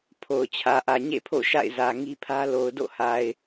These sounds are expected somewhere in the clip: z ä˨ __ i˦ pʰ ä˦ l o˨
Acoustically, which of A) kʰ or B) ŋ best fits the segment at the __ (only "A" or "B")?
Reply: B